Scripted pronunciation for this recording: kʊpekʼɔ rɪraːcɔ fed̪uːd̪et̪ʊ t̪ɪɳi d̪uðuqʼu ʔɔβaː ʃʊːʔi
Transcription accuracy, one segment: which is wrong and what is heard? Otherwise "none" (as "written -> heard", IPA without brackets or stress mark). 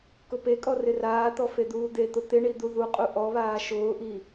c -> t̪